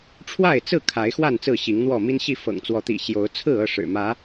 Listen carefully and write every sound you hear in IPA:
ʈ͡ʂʰ w a˥˨ ɪ̯ t͡s ɹ̩˥˨ kʰ a˨˦ ɪ̯ x w a˥˨ n t͡s ɹ̩˥˨ ɕ i˨˦ ŋ n̪ w ɔ˥˨ m i˦ n ɕ i˥˨ f ɤ̰˨˩ ŋ t͡s w ɔ˨˦ t̪ ḭ˨˩ ɕ j o˨˦ ʊ̯ t͡sʰ ɹ̩˥˨ ɤ˥˨ ʂ ɻ̩˨˩ m ä˨˦

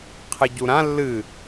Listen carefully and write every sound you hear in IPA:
qʰ ɨ ɟ u ɾ ã lː ɨ

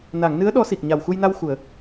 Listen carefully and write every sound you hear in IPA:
n a˨˩˨ ŋ n ɨ˧˥ ə̯ ɗ ɔ˧˥ s i˨˩ k̚ ɲ a˨˩ w x u˧ j n a˧ w x u˨˩˨ ə̯

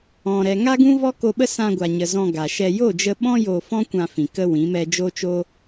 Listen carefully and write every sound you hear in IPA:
ɔ̃˨ ɾ ɛ˨ ŋ a˦ ɡ ũ˦ v ɔ˦ k o˧ ɓ ə˦ s ã˧ ɡʷ a˨ ɲ ə˨ z ɔ̃˧ ɡ a˨ ʃ ɛ˧ j o˦˨ d͡ʒ ə˧ ɓ ɔ̃˦ j o˧ f ɔ̃˦ kʷ ã˧ f ĩ˨ k ə˦ w ĩ˨˦ m ɛ˦ d͡ʒ o˦ t͡ʃ o˦

